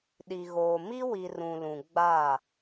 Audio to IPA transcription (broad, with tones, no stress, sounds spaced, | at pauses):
ɗ i˨ ɣ oː˨ m i˦ w i˨ r ũ˨ l ũ˨ ɡ͡b a˦˨